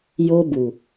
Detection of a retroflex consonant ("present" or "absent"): absent